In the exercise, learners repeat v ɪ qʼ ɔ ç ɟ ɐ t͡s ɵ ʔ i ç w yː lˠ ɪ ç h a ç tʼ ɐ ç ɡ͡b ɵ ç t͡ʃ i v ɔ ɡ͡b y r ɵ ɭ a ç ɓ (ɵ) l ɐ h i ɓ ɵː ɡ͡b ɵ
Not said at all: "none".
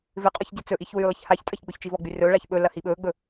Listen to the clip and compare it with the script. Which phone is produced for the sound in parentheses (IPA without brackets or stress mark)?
ɵ